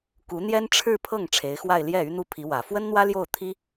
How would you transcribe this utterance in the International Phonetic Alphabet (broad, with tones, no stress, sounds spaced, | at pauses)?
k u˧˥ n̪ j ɛ˥ n ʈ͡ʂʰ ɻ̩˥˧ pʰ ɤ˥˩ ŋ ʈ͡ʂʰ e˧˥ ɪ̯ x w a˥˧ ɪ̯ l j ɛ˥˩ y˥ n̪ u˥˩ pʰ i˧˥ w ä˨˩ f w ə˥ n n̪ w ä˥ l j o˥˩ ʊ̯ t̪ʰ i˥